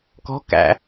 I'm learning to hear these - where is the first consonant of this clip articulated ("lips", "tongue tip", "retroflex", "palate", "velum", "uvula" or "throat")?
velum